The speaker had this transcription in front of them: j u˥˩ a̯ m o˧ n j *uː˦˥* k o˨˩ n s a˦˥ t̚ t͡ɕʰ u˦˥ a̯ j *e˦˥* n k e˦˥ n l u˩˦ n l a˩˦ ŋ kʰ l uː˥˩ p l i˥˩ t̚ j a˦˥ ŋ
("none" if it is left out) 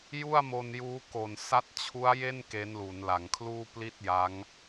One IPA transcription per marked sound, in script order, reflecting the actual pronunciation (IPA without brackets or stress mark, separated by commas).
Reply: uː˦˥, e˥˩